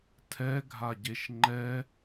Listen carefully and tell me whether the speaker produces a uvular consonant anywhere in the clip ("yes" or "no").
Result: no